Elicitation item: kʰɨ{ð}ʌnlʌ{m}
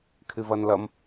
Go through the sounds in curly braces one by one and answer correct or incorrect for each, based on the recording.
incorrect: v, correct

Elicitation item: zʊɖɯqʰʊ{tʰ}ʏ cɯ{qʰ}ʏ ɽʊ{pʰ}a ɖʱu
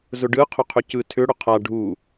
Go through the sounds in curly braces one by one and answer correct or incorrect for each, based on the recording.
incorrect: qʰ, incorrect: tʰ, incorrect: qʰ

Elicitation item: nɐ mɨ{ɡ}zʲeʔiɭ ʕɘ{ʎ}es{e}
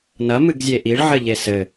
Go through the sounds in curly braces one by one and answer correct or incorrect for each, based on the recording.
correct, correct, incorrect: ɘ

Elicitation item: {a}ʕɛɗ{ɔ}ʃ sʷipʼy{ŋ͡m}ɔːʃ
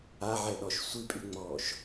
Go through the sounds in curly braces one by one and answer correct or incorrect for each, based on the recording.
correct, correct, correct

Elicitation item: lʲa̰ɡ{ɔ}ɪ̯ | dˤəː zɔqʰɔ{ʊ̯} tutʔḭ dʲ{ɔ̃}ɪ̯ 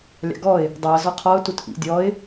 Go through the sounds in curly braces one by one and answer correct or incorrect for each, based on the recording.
correct, correct, incorrect: ɔ

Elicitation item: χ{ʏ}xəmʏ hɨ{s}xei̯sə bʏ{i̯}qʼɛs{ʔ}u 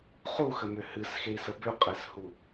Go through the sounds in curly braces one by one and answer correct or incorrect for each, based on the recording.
incorrect: u, correct, incorrect: u̯, incorrect: h

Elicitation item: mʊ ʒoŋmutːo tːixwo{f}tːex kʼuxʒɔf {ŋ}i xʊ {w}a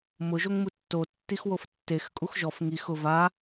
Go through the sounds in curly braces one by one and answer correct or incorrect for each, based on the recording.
correct, correct, incorrect: v

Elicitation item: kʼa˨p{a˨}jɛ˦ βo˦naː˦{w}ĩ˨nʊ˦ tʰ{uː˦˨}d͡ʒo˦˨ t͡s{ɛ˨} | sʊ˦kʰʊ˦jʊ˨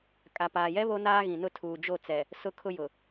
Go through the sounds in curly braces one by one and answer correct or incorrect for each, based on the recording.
incorrect: aː˨, incorrect: ɣ, incorrect: uː˨, correct

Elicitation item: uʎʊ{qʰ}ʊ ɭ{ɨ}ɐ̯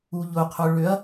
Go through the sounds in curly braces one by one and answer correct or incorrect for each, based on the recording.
correct, incorrect: ʏ

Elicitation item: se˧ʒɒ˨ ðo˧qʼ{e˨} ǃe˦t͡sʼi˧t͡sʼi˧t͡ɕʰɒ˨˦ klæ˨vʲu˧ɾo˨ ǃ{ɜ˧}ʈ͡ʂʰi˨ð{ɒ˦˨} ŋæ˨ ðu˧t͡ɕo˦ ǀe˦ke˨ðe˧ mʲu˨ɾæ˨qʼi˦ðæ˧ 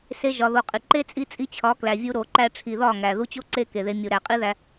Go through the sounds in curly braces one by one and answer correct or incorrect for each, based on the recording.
incorrect: i˨, incorrect: æ˧, correct

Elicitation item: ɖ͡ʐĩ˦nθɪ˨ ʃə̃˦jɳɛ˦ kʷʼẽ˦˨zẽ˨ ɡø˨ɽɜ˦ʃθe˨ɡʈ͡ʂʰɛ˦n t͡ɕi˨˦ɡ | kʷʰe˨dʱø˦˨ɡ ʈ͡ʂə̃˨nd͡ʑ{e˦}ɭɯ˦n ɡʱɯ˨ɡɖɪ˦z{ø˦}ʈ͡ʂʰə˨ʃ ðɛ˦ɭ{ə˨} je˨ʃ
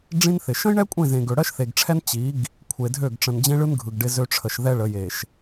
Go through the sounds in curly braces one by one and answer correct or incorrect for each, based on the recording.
incorrect: ẽ˦, correct, incorrect: ə˨˦

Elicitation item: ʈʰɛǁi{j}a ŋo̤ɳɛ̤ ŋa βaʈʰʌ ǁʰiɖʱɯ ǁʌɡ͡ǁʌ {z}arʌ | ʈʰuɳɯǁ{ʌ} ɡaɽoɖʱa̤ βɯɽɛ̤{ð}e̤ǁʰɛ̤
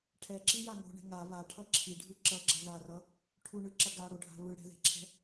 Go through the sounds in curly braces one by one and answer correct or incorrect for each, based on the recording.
correct, incorrect: ð, correct, correct

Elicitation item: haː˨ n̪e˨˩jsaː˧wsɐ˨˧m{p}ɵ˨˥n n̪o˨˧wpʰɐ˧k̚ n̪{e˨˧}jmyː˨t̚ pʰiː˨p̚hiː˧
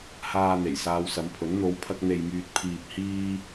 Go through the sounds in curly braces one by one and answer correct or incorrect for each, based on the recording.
incorrect: pʰ, incorrect: e˨

